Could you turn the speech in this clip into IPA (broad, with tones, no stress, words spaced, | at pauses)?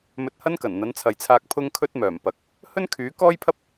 mɵ˧t̚hɐ˥nkɐ˨˩n n̪ɐ˨˥nt͡sʰɐ˨jt͡sʰaː˧k̚ pʰʊ˧ŋkʰɵ˧t̚ mœː˨˩mpɐ˨˥k̚ | hɵ˥nkʰyː˨˥ kɔː˥jpʰɐ˥p̚